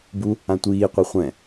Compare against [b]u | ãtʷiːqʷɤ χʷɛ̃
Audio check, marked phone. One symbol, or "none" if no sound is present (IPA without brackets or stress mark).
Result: b